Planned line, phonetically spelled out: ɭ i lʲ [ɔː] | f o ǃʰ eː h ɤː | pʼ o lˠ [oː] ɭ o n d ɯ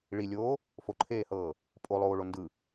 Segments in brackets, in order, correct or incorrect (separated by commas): incorrect, correct